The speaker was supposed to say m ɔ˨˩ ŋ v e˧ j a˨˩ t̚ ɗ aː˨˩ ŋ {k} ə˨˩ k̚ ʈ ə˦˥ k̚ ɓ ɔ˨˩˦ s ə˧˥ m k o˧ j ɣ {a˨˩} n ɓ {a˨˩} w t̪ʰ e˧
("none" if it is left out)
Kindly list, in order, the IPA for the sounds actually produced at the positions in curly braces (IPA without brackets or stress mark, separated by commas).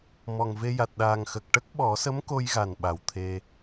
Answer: x, a˨˩, a˨˩˦